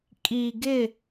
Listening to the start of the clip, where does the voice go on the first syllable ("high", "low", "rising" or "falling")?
low